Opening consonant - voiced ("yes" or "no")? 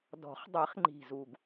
yes